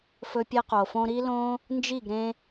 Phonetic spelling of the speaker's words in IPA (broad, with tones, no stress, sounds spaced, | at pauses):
f ɵ˦ pʲ e˦ q o˨ f õ˦ ɾ i˦ l õ˦ | n d͡ʒ i˦˨ ɡ ɾ ẽ˧